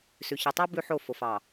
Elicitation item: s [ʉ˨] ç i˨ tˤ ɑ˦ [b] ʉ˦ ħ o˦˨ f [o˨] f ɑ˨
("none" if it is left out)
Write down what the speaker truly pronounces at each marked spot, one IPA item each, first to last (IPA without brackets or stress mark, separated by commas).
ʉ˨, b, o˨